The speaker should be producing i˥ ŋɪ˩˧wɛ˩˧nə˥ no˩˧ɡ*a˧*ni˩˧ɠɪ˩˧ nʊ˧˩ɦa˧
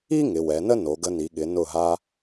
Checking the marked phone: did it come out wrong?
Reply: yes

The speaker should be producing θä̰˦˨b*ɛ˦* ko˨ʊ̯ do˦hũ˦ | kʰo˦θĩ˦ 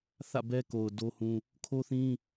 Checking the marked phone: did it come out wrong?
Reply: no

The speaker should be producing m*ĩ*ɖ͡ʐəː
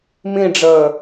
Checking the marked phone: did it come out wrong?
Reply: no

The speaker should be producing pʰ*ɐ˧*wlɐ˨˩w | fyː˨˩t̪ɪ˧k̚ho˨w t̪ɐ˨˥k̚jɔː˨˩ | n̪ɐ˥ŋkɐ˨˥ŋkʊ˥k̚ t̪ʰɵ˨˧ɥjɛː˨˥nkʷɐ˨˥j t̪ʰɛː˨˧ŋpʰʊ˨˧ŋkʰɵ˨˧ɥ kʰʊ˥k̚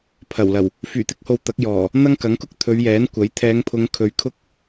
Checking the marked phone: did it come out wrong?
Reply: yes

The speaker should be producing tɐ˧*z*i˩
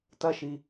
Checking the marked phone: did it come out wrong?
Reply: yes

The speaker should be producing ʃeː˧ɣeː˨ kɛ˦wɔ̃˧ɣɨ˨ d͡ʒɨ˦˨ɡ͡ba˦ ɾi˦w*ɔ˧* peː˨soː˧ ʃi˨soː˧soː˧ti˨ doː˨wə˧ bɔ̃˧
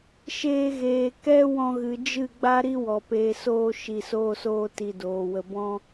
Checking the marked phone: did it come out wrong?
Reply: yes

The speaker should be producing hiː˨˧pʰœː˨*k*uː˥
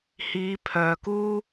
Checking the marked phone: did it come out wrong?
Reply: no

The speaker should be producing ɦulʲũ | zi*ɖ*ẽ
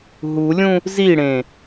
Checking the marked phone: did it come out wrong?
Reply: yes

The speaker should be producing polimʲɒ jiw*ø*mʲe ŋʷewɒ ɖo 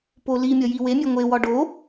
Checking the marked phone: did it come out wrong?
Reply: yes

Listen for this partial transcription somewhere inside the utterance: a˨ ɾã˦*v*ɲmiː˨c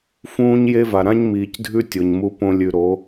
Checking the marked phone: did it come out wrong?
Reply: yes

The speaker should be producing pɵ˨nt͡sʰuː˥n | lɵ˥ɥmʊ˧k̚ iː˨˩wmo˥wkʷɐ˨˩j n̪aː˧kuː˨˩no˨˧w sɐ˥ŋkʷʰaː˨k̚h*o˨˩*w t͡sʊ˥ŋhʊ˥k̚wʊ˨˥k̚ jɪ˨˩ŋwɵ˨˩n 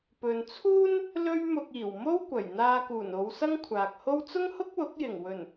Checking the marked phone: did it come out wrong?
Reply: yes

